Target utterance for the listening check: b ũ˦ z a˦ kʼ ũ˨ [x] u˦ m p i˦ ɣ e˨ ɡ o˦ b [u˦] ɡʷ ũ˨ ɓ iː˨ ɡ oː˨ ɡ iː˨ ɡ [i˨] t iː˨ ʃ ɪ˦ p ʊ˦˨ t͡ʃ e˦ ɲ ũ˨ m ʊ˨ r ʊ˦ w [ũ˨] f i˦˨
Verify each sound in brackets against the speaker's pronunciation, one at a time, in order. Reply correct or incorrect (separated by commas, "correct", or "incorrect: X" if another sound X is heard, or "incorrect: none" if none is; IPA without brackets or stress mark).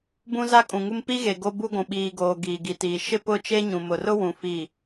incorrect: ŋ, correct, correct, correct